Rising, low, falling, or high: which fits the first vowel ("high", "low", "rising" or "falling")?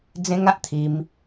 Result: high